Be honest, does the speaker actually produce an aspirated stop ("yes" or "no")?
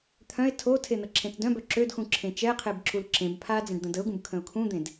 yes